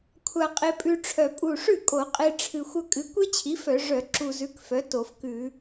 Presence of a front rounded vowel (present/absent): present